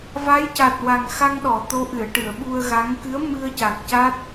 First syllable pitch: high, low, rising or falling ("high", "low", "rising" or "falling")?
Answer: rising